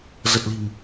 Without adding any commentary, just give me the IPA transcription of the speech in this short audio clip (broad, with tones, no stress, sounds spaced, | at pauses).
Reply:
z ə˨˩ t̚ l i̤˨˩ m